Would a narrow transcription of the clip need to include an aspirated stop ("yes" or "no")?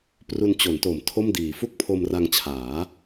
yes